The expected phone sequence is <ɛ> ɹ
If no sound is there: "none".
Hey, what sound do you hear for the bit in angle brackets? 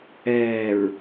ɛː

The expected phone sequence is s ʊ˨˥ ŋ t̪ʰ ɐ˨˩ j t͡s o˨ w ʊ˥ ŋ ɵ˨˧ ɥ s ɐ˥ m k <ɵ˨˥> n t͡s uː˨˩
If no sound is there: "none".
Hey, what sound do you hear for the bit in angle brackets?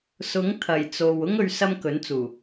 ɵ˨˥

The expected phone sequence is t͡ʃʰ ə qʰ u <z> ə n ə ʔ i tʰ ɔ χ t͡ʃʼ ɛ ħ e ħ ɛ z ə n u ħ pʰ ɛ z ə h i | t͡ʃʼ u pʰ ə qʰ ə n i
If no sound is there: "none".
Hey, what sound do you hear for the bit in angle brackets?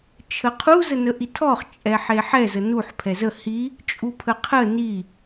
z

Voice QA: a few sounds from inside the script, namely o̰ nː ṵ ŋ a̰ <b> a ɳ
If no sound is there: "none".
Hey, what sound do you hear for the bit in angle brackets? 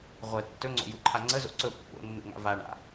v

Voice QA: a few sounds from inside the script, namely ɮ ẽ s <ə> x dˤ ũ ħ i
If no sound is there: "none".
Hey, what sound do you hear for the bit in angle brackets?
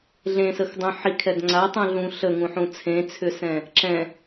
ə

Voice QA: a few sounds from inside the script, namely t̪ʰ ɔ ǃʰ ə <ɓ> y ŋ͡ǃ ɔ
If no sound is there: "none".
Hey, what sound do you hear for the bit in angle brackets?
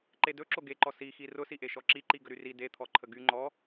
ɡ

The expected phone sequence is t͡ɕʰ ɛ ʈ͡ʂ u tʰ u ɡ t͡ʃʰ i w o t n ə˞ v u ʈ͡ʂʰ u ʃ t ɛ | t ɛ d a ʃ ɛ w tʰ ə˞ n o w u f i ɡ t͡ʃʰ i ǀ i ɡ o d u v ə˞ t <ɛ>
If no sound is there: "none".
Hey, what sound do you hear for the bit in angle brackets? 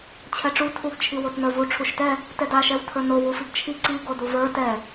ɛ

